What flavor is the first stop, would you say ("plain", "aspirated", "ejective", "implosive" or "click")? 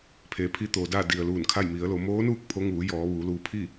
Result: aspirated